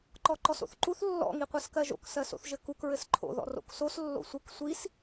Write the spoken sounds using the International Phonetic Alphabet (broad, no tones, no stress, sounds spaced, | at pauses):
ǃ ɔ ǃ ɔ s o̰ θ ǃ u θ lː ɔ̰ ŋ i qʷ ɜ s k ɜ ʒ o̰ k s ɜ s o̰ θ ʒ ɘ k u k ɹ ɘ s ǃʰ o̰ ð ɔ̰ r o̰ k s o s lː o̰ sʷ ɘ k sʷ i s